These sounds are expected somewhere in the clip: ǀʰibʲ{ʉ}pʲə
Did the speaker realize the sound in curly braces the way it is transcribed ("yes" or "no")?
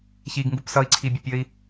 no